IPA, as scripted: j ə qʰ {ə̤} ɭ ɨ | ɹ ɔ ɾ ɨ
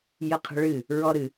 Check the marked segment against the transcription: correct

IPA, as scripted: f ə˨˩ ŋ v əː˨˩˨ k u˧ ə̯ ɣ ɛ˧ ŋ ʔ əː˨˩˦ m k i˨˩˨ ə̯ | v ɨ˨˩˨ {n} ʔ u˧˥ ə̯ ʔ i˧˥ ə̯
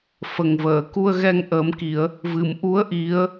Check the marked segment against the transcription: incorrect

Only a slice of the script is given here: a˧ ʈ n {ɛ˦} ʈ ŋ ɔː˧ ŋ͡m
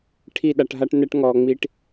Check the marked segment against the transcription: correct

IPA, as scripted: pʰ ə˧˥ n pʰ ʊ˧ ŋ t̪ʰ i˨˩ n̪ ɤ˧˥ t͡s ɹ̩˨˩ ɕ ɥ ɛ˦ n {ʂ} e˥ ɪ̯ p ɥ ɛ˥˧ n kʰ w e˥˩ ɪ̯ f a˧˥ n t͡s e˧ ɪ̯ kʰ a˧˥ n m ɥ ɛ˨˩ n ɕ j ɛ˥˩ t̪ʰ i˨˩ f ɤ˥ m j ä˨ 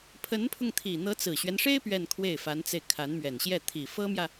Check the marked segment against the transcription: correct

